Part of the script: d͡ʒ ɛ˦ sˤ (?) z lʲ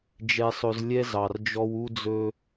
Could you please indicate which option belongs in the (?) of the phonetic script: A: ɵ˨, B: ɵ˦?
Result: B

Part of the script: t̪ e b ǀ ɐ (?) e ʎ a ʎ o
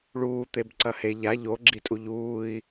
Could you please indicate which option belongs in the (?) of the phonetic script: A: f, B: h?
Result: B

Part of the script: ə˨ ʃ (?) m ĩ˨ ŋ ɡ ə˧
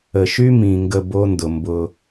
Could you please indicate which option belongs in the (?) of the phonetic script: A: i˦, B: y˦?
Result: B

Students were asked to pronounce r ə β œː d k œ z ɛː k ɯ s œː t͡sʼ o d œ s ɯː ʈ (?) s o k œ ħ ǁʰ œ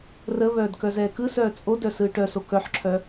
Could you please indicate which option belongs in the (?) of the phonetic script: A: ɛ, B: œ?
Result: B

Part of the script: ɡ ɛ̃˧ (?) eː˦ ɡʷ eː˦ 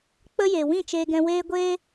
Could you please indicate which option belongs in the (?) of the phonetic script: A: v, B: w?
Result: B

